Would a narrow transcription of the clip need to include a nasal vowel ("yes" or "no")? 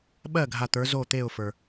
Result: no